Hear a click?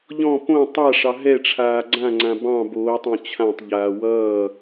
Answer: yes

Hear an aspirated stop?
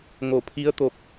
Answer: yes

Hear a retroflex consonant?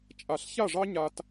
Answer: yes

